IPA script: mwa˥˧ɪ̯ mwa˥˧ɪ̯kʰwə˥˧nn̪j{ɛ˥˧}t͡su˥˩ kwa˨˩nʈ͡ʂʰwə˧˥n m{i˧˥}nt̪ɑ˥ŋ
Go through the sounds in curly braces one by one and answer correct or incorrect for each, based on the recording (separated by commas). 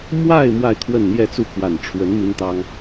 correct, incorrect